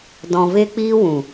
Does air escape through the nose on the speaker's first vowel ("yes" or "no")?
yes